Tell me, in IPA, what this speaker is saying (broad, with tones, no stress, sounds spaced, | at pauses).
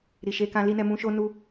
ɾ i˨ ʃ e˧ k ã˧ l i˦ n ɛ˧ m ũ˧ ʃ o˦ n u˦